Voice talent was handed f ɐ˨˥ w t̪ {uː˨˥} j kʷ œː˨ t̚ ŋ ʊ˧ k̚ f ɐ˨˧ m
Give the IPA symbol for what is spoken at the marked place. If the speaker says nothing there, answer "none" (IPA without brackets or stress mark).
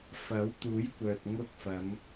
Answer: uː˨˥